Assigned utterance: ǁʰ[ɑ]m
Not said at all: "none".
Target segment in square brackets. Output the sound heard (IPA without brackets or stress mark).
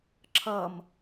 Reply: ʌ